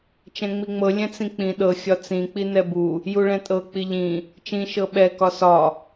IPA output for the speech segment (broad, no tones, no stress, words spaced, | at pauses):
t͡ʃɛ̃ŋ͡miŋ͡mɤ lʲɛ̃t͡sĩk͡pĩ ɗɤ xʲɒt͡sĩ k͡pinɛbu | juɭɛ̃tʼɤ k͡piʎĩ | t͡ʃĩ ʃɤɓɛ kɒsɒ